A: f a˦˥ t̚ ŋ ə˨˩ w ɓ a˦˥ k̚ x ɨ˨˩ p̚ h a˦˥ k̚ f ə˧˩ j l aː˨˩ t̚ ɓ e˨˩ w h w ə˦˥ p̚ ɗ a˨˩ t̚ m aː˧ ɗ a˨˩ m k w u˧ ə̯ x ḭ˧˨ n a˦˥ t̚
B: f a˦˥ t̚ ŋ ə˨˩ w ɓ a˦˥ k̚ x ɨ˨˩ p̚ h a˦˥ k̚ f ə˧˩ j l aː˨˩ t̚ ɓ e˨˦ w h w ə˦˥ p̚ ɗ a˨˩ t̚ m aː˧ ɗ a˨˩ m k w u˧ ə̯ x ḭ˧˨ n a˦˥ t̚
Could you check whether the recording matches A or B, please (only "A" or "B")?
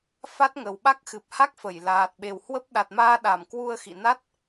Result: A